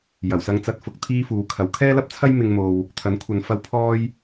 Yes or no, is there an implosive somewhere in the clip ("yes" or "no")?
no